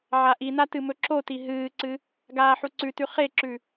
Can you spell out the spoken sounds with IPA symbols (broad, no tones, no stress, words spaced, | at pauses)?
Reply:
ʕaʔina tɨmɵǁoti ɦɨːǀɨ | ɡaːħuǀʉtʉ χeǁʉ